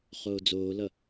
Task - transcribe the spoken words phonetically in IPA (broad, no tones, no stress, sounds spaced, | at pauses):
χ oː d͡z oː l ʌ